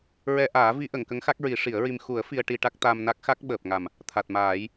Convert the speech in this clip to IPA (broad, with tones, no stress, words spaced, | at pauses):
ɹɛ˧ʔaː˨˩˦vi˧˥ ʔə˨˩˨ŋkə˧˥ŋxa˦˥k̚ɹi˨˩˦ ʂi˨˩˦ə̯ɹi˧m xu˨˩˦ə̯ fi˧ə̯ʈi˧ʈa˦˥k̚ t̪a˧mna˦˥k̚ xa˦˥k̚ ɓəː˨˩p̚ŋa˨˩m | t̪ʰa˨˩t̚maː˨˩˦j